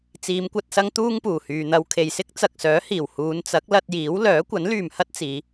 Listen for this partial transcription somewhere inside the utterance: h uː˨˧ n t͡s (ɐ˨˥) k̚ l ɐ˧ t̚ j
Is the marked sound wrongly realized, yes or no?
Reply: no